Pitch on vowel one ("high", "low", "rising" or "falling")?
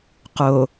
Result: low